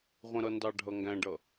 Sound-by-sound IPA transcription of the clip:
ʁʷ ə̃ ɾ ʌ n d ɑ ɖʱ ʌ ŋ ɡ æ̃ ɖ ʌ

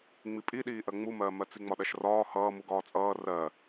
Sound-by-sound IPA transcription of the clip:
ŋ͡m i pʼ i ɗ iː ʔ ɜ ŋ͡m u m ɜː m ɜ t͡s i ŋ͡m ɒ ɗ ɜ ʃ r ɒː h ʌː m u ɡ ɒː t͡sʼ ʌː r ɜ

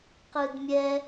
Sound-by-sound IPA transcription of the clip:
q ɯ d mʲ ɛ

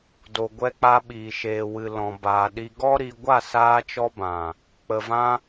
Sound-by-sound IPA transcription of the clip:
d o˨ ɡʷ ɛ˧ k͡p a˧ ɓ iː˨ ʃ eː˨ w ɨ˨ l ɔ̃˨ b aː˨ ɗ i˧ ɡ ɔ˦ ɾ i˧ ɡʷ a˦˨ s aː˧ t͡ʃ ɔ˧ b ã˨ | k͡p ə˨ v ã˧

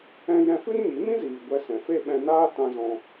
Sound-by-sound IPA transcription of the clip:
ɛ̃˧ j ɛ̃˧ f ɨ˦ n ɲ i˨˦ m ĩ˦ z iː˨ ɡʷ ɛ˧ s ɛ̃˨ f e˦ ɓ ɛ̃˧ n aː˦ t ã˧ z ɔ̃˧

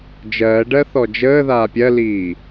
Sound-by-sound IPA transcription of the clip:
d͡ʒ ɜː ɖ ɜ θ ɔ d͡ʒ əː ð aː pʲ ɜ l iː

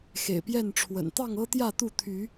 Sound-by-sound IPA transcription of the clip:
x ḛ˨˩ ɪ̯ p j ɛ˥˨ n ʈ͡ʂʰ w ə̰˨˩ n t̪ ɑ˥˨ ŋ ɤ˦ t̪ j ä˥˨ t̪ u˥˨ t̪ʰ y˨˦

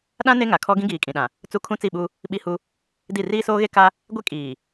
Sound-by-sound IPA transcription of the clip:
ɗ ã˦ n e˦ ŋ a˨ kʰ ɔ˦ ɡ ĩ˦ ɡ iː˨ kʼ ĩ˨ ɗ ã˨ | t͡s u˦ kʰ ũ˦ t͡s i˦˨ ɓ u˦ | ɓ i˦ h u˦ | d i˦˨ r iː˦ s oː˦ ɣ e˦ k a˦ | ɡʷ e˦ kʼ iː˨

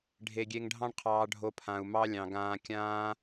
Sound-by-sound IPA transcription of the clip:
ɖʱ e˨ ɡʲ e˧ ŋ ɖʱ ɑ̃˦ ɳ qʰ ɑː˧ ɖʱ o˧ pʰ ã˨ u̯ m ɑ˦ lʲ ɑ̃˨ ɡ ãː˧ kʲ ãː˦

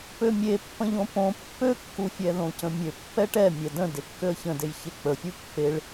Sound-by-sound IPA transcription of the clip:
p ø mʲ e pː ə̃ ʎ õ p õ pː ø kː u fʲ ɛ ð õ c ə̃ mʲ ø pː ɛ ʈ ɛ mʲ ɛ d ə̃ d e kː ø ə̯ ç ə̃ d e j ç e k͡p ə fʲ u pː e ɭ

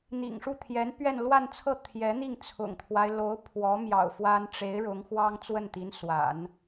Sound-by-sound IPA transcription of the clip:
n̪ ḭ˨˩ ŋ ʂ u˥˩ t̪ʰ j ɛ˧˥ n p ɥ ɛ˥˧ n l w a˥˧ n t͡sʰ ɤ˥˩ t̪ʰ j ɛ˧˥ n̪ i˥˩ ŋ t͡sʰ ʊ̰˨˩ ŋ t̪ʰ w a˦ ɪ̯ l o˧˥ ʊ̯ pʰ w ɔ˧˥ m j ɑ̰˨˩ ʊ̯ f w a˥ n ʈ͡ʂ e˧˥ ɪ̯ ɻ ʊ˧˥ ŋ x w ɑ˥ ŋ t͡s w ə˥˩ n t̪ i˧˥ n s w a̰˨˩˦ n

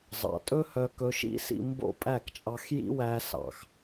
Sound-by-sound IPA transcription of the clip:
zˤ ɑ̰˨ tʼ ɵ˦ h œ˧ k ɵ˧ ʃ ḭ˦ s ḭ˧ m b o̰˦˨ pʼ æ˦˨ k t͡ʃʼ ɑ˧ x j ḭ˦ w æ˧ s ɑ̰˨ x

